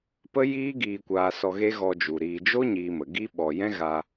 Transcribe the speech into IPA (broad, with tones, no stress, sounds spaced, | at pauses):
p ə˦ j iː˦ ɡ iː˧ kʷ aː˧ s ɔ˧ ɣ e˦ ɣ ɔ˧ d͡ʒ u˨ ɾ iː˧ d͡ʒ o˦ ɲ iː˧ m ə˨ ɡ i˦ ɓ ɔ˨ j ɛ̃˦ ɣ a˧